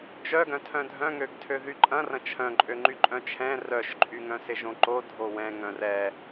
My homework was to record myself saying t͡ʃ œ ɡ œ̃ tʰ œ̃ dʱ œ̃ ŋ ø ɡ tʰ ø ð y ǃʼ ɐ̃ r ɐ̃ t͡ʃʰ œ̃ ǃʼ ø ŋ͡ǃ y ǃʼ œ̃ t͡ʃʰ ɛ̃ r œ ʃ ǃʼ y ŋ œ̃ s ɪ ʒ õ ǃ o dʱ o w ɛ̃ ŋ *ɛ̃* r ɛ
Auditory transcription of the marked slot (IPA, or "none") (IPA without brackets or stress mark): œ̃